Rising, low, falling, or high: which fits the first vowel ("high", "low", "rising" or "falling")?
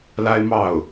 high